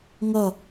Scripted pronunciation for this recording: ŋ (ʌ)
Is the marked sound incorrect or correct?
correct